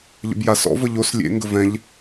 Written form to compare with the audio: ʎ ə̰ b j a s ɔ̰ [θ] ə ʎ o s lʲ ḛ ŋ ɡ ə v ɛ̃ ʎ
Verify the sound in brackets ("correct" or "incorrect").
incorrect